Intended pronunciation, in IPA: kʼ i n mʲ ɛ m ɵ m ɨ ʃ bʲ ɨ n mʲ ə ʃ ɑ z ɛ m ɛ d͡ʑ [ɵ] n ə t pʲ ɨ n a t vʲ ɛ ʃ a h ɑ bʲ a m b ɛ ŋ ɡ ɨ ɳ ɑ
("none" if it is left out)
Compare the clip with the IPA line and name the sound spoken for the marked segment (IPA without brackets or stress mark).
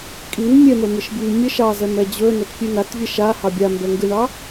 ɵ